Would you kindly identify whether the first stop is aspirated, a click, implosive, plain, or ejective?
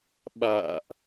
implosive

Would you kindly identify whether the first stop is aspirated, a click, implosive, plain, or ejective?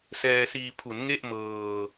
aspirated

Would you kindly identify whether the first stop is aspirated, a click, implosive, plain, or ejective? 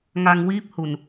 plain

